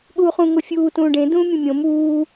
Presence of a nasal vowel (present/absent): present